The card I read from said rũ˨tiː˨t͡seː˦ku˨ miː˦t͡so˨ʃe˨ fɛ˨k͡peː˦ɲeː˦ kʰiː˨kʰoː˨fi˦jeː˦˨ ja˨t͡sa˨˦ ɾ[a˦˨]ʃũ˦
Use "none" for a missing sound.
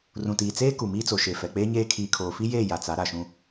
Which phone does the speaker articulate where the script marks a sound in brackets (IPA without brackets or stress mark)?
a˨